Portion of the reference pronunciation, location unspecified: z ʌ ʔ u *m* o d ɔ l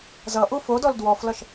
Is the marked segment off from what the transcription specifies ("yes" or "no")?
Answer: yes